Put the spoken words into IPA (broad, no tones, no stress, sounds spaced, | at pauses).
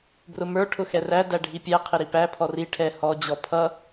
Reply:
b r ʊ m ə˞ ʈʰ ʊ x ɛ r æ d æ ɖʱ i pʲ æ qʰ ɪ ɾ i p æ pʰ ɔ r i ʈʰ ɛ h ɔ d͡ʑ ɔ pʰ ʌ